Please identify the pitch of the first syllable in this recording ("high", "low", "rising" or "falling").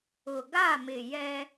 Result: low